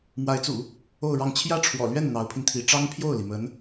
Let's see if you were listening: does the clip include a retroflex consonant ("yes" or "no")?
yes